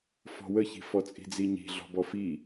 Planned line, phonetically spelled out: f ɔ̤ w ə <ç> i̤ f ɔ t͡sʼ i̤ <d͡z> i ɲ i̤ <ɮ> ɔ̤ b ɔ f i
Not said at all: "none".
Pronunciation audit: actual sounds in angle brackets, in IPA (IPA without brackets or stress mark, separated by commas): ç, d͡z, ɮ